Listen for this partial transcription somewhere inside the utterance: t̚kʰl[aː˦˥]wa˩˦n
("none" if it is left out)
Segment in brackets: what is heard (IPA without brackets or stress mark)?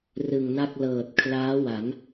aː˦˥